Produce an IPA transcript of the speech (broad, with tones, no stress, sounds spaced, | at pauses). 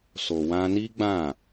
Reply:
s o˨ w ã˧ n i˦ ɡ͡b ã˦˨